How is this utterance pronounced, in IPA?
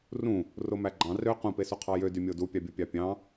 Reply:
rũ | romæɡ͡ǃɑ̃ rø qũpesu qʰɑjø dymʲodu pʲɑbʲopʲɑpʲɑ̃

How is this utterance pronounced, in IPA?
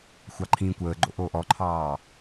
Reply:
xʷɑǃʰĩːkʷəːɡ͡ǃo̰ ʔoːʔɔǃʰɑː

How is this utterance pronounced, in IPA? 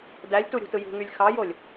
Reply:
dælʲtuɾʲṳtɯ jṳŋylʲ xɑjolʲ

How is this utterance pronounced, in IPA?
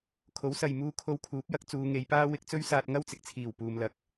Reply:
kʰo˨˥wsɐ˨jmuː˧ kʰo˧wkʰuː˨˥p̚jɐ˧k̚ t͡suː˨˧ŋe˨˧jpaː˥ wɪ˧k̚t͡sɵ˥ɥsaː˧t̚ŋɐ˥w t͡sɪ˨k̚t͡sʰiː˨˩w puː˨mlɐ˨k̚

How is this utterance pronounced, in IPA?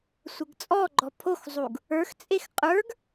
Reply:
sʷəɡt͡sʼɔɡ͡ǃɔ pʰoxzˤuɡ | ə˞xt͡sʼex qʼə˞ɡ

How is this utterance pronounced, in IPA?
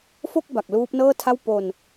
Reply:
fo˥˩k̚ ba˨˩k̚luː˦˥p̚nɤː˥˩tʰa˥˩w po˧n

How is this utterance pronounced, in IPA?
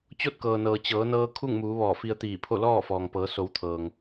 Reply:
t͡ɕo˥˨t̚kɤː˩nɤː˩ t͡ɕɤː˩˧nɤː˧ kʰu˥˨ŋmuː˩˧ ʋɔː˧˩fi˧ə̯ t̪iː˧˩pʰo˥˨ lɔː˥˨fɔː˩ŋpɤː˩˧so˩˧w t̪ʰɤː˩ŋ

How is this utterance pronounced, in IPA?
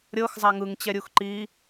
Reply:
ɾʲɤxzˤa ŋɯŋt͡ɕɛɾʲux ǃi

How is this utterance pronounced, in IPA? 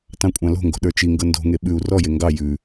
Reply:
tɑ̃kʷʼɑ̃lo̤ŋɡo̤ ɗə˞t͡ʃiŋɡɤ ndo̤ŋe ɓʉu̯ rɔje ŋɡɑ jʉ

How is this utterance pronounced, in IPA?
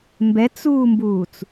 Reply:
mbɛt͡suːmbuːt͡s

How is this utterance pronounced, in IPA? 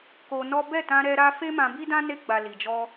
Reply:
ko˧ nɔ˦ bɛ˦˨tã˧ ɾɛ˧ɾa˧ fe˦mã˧bi˦dã˦ ne˧ɡ͡ba˨ li˨d͡ʒɔ˧

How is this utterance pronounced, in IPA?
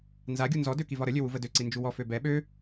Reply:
nzaɡʲu nzɔ døkivɒɾə lʲøwuvədø ǀind͡ʒuwɔ føbɛ ɓø

